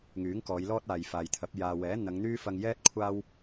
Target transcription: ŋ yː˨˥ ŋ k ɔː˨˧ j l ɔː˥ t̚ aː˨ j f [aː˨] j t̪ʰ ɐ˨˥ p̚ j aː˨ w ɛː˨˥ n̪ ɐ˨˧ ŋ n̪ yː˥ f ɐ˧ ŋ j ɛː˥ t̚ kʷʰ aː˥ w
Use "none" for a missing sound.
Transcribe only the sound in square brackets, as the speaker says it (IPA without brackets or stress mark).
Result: aː˨